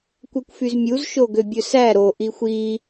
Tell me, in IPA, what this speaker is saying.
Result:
kʷ ɛ kʷ f y z mʲ u z ʃ o ɡ ø bʲ ɵ s æ ɾ o ʔ i xʷ i

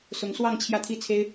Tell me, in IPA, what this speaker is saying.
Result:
s ʊ˧˥ ŋ s w ɑ˥˧ ŋ t͡ɕʰ j ä˥˩ t̪ʰ i˥ t͡sʰ e˥ ɪ̯

